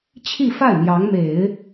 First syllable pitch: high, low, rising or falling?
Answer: falling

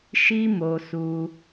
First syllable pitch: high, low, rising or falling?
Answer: high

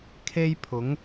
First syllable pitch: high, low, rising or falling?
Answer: high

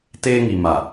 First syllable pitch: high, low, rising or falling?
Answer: high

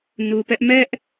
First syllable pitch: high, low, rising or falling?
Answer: low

